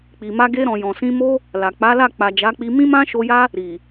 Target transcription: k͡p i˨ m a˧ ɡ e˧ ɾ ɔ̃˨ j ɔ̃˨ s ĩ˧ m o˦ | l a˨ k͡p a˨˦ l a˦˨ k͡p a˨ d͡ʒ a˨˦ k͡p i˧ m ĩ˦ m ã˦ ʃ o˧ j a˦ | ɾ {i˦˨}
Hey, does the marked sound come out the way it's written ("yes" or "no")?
no